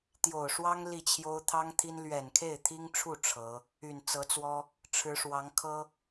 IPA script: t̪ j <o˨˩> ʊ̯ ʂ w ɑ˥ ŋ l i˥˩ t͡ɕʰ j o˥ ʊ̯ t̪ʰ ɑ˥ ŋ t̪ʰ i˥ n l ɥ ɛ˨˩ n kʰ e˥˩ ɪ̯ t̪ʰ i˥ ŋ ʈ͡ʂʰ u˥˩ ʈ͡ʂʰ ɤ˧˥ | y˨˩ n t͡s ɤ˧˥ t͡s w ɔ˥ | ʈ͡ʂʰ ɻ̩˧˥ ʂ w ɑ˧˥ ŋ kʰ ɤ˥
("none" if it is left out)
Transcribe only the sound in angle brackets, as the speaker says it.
o˨˩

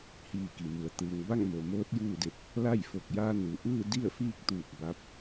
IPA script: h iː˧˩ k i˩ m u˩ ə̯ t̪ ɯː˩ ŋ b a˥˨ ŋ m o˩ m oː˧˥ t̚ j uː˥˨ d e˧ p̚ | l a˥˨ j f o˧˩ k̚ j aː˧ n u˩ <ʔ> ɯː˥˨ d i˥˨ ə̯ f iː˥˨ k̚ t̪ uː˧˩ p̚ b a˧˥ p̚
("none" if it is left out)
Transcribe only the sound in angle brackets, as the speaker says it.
ʔ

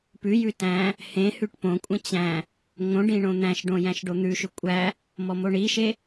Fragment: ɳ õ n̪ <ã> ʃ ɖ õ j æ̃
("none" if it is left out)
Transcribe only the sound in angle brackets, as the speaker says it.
æ̃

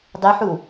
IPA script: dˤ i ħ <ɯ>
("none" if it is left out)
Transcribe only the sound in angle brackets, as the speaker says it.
u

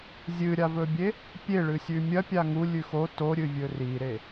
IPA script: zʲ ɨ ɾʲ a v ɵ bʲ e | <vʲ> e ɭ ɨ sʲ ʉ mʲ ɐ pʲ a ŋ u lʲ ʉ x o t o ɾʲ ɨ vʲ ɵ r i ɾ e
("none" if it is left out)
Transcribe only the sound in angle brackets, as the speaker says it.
pʲ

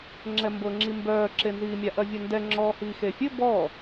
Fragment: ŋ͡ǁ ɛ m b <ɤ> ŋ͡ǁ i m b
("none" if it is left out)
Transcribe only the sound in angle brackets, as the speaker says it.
ɤ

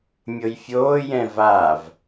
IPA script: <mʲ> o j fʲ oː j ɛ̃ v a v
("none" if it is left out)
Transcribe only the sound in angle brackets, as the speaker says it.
mʲ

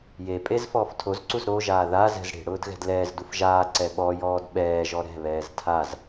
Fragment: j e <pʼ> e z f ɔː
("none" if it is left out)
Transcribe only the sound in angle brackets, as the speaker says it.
pʼ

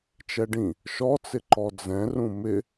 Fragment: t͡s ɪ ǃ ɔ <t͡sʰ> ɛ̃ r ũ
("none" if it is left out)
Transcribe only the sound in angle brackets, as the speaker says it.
d͡z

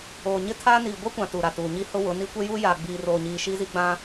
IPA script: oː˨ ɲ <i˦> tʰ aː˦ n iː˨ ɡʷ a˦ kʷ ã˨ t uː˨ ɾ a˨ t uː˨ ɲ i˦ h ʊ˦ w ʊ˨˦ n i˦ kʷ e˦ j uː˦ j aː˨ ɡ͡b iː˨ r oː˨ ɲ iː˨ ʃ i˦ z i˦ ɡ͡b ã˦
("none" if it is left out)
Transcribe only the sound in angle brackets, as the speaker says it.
ɪ˦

